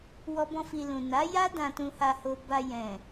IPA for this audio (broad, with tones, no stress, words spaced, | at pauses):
wɔ˦bɔ̃˦fi˧lũ˨ na˨˦ja˦ dã˧tũ˧ha˧ho˧ ba˧jɛ̃˨